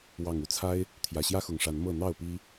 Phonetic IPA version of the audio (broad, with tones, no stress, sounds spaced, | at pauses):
w ɑ˨˩ ŋ u˨˦ t͡sʰ a˦ ɪ̯ | t̪ʰ j ä˨˩ ɕ j ä˦ x ʊ˨˩ ŋ ʂ a˨˦ n m ɤ˥˨ n̪ ɑ˥˨ ʊ̯ p i˦